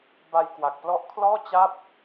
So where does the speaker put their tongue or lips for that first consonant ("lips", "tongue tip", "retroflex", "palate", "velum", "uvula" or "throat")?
lips